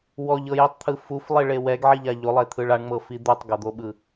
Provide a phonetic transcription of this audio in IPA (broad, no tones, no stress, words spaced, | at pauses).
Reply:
wɔʎɤjitˤt̪ʰɯ fuflˠiɭe wɛɡʕiʎa ʎolˠet̪ʰɯɭ aɳŋ͡mɤfi d̪utˤɡɤd̪oɓɯ